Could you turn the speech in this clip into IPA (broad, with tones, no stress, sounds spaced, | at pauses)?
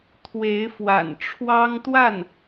t̪ʰ w e˧˥ ɪ̯ f w a̰˨˩ n ʈ͡ʂʰ w ɑ˥ ŋ t̪ w a˥˩ n